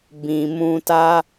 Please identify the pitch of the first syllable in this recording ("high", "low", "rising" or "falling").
low